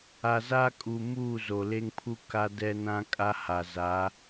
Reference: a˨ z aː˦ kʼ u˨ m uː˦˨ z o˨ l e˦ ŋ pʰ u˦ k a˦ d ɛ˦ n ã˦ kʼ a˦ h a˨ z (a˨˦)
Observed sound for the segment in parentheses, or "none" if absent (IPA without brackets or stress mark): a˨˦